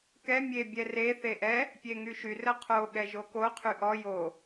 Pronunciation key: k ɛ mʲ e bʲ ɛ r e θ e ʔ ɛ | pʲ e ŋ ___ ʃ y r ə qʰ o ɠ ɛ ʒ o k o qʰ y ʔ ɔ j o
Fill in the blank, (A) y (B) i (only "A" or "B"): A